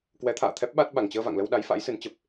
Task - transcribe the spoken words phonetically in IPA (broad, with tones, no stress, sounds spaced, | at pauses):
k w ɛ˨˦ t̪ʰ a̰ː˧˨ t̪ʰ ɛ˦˥ p̚ ɓ a˦˥ t̚ ɓ a˨˩ ŋ t͡ɕ əː˧ v a̰˧˨ ŋ l ə˧ w ɗ a˨˦ j f a̰˧˥ j s ɨ˨˦ n t͡ɕ ə˨˩ p̚